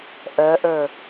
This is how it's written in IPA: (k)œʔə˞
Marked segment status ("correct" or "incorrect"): incorrect